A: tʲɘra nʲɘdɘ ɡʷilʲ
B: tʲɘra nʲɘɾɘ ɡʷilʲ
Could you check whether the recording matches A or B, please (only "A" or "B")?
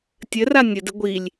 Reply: A